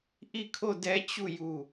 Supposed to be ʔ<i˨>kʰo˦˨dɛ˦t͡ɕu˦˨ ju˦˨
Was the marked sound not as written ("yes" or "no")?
yes